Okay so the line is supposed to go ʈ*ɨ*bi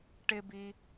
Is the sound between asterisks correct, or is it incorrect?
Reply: incorrect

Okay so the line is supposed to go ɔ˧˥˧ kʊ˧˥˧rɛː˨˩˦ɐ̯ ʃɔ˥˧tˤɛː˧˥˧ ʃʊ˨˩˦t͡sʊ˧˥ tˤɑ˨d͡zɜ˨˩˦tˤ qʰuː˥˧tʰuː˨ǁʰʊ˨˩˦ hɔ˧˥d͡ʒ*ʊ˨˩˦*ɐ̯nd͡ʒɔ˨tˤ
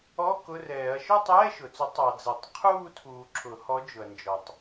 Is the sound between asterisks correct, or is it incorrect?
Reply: incorrect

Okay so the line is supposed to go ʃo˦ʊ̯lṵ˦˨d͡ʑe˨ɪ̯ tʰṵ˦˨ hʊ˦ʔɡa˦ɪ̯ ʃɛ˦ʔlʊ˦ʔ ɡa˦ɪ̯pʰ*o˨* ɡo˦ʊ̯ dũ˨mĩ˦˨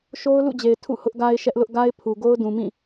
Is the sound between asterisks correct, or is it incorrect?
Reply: incorrect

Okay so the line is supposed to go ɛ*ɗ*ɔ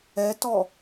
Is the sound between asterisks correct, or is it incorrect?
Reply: incorrect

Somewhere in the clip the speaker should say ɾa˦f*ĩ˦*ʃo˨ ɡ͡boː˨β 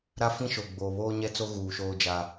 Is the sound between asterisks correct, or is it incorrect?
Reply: correct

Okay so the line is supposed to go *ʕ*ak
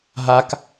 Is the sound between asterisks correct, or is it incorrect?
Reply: incorrect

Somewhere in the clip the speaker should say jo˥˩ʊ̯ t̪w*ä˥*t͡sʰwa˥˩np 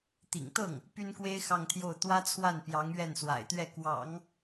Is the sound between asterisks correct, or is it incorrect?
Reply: correct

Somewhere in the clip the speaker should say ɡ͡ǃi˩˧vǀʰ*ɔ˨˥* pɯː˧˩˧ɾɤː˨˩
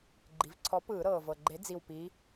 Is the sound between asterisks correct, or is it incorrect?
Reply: correct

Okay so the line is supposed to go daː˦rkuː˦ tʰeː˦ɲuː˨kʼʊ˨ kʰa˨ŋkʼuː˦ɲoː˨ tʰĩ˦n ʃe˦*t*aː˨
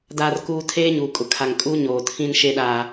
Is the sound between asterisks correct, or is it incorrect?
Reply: incorrect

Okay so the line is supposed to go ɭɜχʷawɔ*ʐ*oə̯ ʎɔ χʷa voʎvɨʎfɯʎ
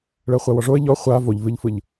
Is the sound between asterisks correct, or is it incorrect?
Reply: correct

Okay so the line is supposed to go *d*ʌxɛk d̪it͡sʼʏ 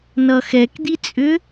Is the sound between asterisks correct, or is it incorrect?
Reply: incorrect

